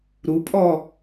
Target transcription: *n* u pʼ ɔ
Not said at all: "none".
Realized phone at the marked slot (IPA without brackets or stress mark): ɾ